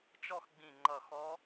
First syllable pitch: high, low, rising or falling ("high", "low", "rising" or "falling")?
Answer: falling